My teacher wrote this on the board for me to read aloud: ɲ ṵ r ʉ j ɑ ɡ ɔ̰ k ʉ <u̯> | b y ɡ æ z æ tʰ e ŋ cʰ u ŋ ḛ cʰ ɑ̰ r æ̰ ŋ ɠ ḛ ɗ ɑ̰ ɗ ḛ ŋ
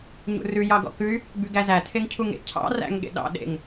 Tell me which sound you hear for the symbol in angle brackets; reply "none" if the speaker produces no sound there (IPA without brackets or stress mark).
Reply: y̯